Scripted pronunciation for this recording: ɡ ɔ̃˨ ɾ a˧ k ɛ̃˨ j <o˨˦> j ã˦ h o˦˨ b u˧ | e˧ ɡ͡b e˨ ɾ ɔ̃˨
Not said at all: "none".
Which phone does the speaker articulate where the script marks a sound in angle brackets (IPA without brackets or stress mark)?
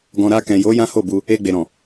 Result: o˨˦